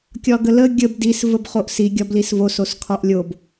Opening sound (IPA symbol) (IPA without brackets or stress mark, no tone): kʲ